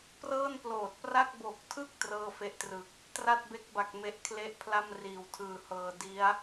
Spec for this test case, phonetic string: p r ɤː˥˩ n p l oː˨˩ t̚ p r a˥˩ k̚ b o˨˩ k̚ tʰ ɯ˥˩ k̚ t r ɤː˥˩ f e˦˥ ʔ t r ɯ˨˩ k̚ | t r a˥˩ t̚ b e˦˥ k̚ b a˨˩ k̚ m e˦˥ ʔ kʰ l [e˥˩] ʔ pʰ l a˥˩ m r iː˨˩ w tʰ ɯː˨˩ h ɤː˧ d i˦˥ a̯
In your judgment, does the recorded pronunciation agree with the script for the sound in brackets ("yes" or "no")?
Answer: yes